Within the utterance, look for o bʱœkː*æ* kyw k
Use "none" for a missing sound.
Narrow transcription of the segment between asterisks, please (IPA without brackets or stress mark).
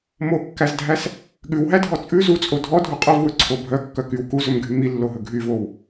œ